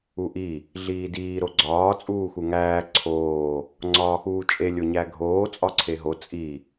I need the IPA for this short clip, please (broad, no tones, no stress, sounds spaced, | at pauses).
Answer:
u ʔ i | ɮ iː d iː ɾ o ɡ͡ǀ ɒː t͡sʼ uː x u ŋ æː ǀʰ oː | ŋ͡ǀ ɒː x uː t͡ʃʼ e lʲ o ɲ æ ɡʱ oː t͡sʼ ɒ ǀʰ e ɦ o t͡sʼ i